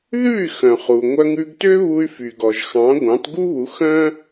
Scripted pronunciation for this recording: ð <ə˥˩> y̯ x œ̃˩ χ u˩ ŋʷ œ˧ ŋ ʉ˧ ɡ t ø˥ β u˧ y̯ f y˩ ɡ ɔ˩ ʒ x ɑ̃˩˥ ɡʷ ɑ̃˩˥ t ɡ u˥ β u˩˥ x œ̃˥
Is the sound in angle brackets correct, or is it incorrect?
incorrect